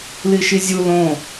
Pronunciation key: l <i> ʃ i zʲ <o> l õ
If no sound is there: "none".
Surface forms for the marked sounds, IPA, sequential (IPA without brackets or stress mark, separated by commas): i, u